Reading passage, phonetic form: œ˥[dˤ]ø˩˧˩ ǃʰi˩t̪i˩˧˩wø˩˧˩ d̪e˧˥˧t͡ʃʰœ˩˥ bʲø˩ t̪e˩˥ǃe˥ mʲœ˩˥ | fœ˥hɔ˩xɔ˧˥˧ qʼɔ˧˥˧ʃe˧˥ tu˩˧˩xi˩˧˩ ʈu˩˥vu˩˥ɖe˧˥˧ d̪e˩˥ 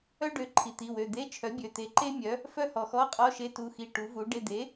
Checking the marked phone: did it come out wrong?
yes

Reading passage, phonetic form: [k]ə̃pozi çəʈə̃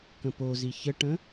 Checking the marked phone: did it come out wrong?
no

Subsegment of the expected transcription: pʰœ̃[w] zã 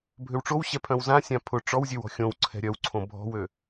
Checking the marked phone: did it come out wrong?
no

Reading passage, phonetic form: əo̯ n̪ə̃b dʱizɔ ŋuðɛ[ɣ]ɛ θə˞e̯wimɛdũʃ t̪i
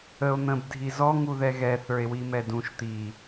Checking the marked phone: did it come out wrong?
no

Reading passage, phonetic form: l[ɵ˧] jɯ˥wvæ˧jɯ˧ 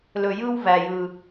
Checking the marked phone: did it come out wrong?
no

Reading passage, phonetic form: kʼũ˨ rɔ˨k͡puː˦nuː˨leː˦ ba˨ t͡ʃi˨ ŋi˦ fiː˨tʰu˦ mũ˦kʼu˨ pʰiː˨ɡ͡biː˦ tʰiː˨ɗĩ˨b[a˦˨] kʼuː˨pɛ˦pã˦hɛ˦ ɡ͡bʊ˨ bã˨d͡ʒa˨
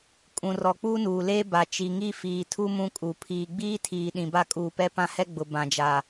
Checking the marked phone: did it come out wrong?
yes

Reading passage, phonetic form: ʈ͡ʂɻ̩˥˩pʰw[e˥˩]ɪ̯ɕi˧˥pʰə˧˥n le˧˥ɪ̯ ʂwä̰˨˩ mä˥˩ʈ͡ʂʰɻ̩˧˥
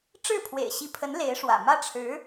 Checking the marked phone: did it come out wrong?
yes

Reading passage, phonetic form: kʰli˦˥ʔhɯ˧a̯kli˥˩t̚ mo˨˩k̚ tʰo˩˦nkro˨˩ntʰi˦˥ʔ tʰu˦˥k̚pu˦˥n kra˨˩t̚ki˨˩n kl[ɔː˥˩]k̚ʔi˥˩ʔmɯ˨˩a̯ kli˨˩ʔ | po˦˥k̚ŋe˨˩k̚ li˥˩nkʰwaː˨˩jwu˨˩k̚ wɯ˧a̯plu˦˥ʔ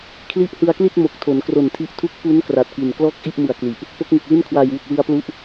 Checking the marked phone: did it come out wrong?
no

